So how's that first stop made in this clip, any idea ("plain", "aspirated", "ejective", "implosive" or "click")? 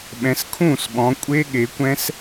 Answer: implosive